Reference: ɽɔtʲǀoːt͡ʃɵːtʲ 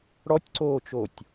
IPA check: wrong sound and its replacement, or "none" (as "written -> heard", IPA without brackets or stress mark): ɵː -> oː